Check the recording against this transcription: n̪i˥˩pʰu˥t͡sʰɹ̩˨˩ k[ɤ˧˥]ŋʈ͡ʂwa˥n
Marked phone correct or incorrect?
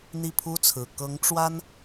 correct